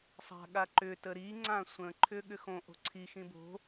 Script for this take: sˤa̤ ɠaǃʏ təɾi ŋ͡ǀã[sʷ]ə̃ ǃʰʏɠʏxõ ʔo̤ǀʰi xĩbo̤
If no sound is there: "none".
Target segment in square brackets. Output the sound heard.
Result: sʷ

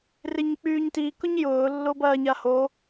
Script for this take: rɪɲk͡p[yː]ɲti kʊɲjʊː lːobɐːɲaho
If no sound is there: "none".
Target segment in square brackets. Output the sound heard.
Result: yː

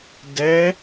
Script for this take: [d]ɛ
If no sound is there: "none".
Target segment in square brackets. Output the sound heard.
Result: d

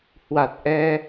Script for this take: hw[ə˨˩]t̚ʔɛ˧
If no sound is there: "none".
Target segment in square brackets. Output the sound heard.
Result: a˨˩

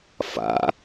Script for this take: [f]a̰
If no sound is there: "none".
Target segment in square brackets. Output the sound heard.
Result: f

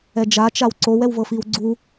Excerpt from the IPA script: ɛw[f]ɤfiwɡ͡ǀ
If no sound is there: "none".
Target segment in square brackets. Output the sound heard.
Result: v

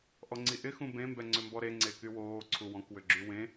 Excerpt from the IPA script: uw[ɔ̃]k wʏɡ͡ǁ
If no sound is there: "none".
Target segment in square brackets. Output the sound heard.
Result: ɔ̃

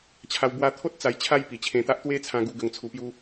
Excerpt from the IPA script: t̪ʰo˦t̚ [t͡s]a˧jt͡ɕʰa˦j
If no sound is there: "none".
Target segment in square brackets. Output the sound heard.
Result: t͡s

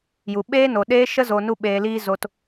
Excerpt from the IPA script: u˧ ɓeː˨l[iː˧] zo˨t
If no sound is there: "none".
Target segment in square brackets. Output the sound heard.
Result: iː˧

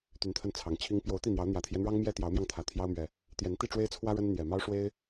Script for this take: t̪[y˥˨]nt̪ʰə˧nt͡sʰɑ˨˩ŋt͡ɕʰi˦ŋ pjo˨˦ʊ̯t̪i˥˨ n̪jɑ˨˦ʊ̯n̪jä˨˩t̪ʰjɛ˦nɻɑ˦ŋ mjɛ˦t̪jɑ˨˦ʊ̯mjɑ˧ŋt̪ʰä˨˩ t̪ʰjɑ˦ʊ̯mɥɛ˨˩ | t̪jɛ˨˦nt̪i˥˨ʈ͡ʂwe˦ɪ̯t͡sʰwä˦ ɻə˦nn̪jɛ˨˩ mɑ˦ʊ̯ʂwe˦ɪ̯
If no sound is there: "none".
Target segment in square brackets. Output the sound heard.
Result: y˨˦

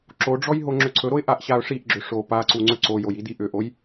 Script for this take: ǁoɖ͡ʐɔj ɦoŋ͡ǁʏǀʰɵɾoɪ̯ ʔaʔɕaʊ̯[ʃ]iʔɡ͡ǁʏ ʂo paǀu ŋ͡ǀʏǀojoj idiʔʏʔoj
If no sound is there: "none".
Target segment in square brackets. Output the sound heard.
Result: ʂ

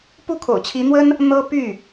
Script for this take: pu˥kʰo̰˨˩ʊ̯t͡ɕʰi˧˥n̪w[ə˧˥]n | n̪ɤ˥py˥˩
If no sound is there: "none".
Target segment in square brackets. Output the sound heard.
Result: ə˥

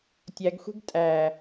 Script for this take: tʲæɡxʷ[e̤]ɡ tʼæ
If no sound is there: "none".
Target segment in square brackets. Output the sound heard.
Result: e̤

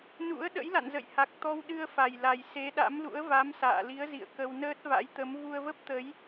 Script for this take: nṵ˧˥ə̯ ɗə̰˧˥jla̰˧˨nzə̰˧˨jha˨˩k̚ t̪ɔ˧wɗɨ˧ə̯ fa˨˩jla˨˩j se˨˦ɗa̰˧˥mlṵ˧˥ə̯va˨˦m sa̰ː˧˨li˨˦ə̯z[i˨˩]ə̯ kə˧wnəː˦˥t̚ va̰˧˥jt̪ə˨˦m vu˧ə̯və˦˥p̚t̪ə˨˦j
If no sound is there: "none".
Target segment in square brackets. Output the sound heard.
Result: ḭ˧˨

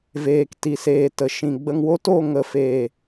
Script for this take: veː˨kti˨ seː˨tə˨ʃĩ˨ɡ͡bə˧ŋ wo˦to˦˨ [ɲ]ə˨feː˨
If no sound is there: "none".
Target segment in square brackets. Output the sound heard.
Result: ŋ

